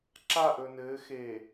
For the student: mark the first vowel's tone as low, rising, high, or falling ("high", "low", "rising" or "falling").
falling